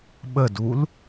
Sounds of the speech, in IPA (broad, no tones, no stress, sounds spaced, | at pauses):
ɓ ə d u l